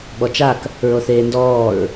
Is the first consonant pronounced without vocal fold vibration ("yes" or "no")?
no